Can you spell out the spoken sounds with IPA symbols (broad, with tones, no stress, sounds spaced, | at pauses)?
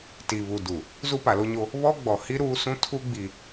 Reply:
t i˨ β u˨ d u˨ | z u˦ p a˨ l o˦ ɲ o˦ | β ɔ˦ ɡ͡b ɔ˨ h i˦ ɾ uː˦ s ũ˦ tʰ u˦ ɡ͡b i˨